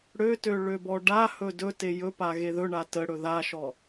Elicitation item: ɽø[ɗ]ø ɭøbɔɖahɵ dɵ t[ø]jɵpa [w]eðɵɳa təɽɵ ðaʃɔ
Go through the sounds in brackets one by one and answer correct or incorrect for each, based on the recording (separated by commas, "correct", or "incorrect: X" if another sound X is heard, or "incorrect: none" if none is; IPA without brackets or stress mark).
incorrect: t, incorrect: e, incorrect: ɣ